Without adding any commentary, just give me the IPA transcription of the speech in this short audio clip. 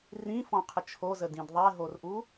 r ĩ f ɔ̃ qʰ ə t͡ʃʰ o z ə d ĩ d ðˤ ɛ ɦ o r ʔ u

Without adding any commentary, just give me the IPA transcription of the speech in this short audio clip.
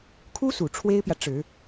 kʰ u˥ s u˨˩ ʈ͡ʂʰ w e˥ ɪ̯ p j ä˨ ʈ͡ʂ ɻ̩˨˩˦

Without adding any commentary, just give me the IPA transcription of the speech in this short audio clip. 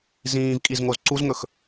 z ĩː v kʼ i z ŋ o z ǀ u z ŋ ɵ x

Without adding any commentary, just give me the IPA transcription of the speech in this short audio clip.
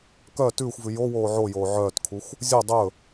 k œ t ʉː xʷ v ʉ j o w oː ʕ o j oː ʕ œː t kʰ u xʷ | zʲ o dˤ ɵ

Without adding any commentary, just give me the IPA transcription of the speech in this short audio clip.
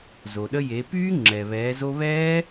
z o˩ ɗ ə˧ j e˩˧ p yː˦˥ ŋ͡ǁ ɛ˩ β ɛː˩˧ z o˧ β ɛː˦˥

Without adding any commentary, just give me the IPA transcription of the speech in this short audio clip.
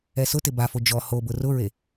ɛ s ʊ t ɪ b a f o d͡ʒ ɔ h o b ʊ r ʊ ɹ e

